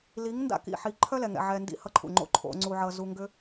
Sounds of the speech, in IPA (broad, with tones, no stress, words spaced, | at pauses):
li˨˦ŋ nda̰˦kḭ˨ħi˨˦ ǃʰœ˦lɛ˨ŋɛ̰˨ ʕɛ˧ndḭ˦ hʌ˦ǃʰṵ˨ŋ͡ǃo̰˦ ǃʰo̰˦ŋ͡ǀu˦ʕʌ˦ zu˦ ŋɡʏ˦